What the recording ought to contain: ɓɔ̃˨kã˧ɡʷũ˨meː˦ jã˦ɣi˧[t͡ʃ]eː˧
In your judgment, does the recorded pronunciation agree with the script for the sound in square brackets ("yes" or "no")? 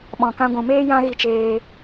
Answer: yes